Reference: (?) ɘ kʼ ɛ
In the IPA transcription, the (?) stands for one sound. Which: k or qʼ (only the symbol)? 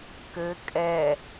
k